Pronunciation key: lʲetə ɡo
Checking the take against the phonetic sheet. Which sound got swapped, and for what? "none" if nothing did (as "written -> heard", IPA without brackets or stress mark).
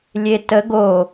none